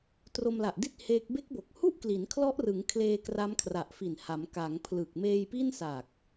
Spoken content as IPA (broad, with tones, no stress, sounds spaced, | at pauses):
t r o˧ m l a˨˩ ʔ d i˥˩ t̚ h eː˦˥ k̚ b e˦˥ k̚ b o˨˩ k̚ h u˥˩ ʔ k l i˩˦ n kʰ l ɔ˦˥ ʔ r ɯ˩˦ ŋ kʰ l eː˧ k r a˦˥ m kʰ r a˨˩ ʔ f i˨˩ n h a˩˦ m k a˩˦ ŋ pʰ l ɯ˨˩ k̚ m eː˧ j p i˥˩ n s a˨˩ k̚